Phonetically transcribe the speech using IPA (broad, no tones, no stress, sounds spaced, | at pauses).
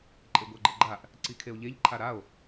ǃʼ e ɡʷ a ɡ͡ǃ ɤ ɡ͡ǃ a ʔ | ǀ i kʰ e o̯ ʎ e ʎ ǃʰ a ɾ a o̯